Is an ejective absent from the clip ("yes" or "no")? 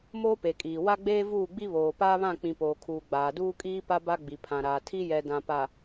no